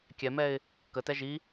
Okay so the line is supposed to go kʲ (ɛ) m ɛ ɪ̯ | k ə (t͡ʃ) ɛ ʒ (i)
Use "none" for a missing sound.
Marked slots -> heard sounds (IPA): ɛ, t, i

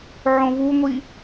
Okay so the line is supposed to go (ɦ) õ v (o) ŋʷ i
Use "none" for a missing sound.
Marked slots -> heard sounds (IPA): ʕ, u

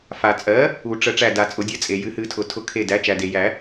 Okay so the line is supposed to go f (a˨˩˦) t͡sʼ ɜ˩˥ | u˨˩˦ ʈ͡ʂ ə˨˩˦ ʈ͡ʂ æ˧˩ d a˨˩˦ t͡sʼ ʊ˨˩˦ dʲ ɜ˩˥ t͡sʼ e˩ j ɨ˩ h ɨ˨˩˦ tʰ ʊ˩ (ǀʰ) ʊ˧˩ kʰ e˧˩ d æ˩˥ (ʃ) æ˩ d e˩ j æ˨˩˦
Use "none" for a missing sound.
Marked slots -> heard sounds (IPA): a˩, tʰ, t͡ʃ

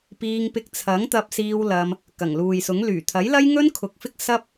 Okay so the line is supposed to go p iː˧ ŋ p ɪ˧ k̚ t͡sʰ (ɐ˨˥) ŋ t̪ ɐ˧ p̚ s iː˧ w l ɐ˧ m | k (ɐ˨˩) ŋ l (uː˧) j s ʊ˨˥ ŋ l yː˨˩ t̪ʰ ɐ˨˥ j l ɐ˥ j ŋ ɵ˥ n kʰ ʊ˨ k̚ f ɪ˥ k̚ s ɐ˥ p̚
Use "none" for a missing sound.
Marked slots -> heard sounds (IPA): ɐ˨˥, ɐ˨˩, uː˨

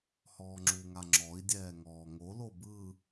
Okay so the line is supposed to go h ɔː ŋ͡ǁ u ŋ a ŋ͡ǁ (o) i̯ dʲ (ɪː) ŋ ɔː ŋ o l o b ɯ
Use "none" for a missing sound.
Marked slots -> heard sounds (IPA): ɔ, ɛː

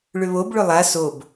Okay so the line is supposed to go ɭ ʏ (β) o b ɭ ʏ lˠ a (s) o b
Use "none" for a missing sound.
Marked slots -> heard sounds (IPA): β, s

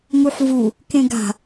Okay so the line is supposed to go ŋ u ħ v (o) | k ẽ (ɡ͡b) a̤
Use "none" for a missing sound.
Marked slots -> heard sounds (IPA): u, ɡ

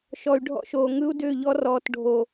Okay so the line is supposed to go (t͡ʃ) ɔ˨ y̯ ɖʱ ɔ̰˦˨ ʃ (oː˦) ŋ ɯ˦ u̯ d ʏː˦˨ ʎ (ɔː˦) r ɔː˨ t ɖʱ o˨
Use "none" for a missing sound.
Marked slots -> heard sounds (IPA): ʃ, oː˨, ɔ˦

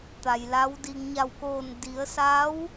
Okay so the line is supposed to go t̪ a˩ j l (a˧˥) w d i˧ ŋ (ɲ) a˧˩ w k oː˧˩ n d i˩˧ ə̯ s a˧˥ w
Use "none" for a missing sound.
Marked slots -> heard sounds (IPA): a˧˥, ɲ

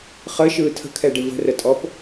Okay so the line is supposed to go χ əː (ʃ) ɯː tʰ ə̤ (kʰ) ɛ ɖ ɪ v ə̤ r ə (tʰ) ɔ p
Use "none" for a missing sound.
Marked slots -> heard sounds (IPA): ʃ, kʰ, tʼ

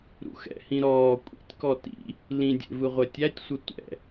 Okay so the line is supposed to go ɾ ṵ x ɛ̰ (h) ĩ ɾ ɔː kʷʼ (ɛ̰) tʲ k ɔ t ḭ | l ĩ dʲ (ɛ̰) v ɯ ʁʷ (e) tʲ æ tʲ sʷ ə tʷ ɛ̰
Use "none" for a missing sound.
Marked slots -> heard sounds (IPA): h, ḛ, ḛ, ɛ

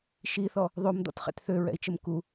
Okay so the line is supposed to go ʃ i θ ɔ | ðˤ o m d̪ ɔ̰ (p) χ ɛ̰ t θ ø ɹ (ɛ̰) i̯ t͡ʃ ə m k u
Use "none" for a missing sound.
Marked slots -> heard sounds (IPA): t, ɛ̰

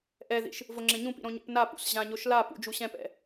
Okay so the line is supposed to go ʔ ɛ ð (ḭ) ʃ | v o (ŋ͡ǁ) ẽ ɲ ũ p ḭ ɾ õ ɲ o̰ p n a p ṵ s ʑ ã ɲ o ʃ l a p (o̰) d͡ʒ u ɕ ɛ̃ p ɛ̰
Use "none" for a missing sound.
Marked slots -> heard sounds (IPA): ḭ, ŋ͡ǁ, ṵ

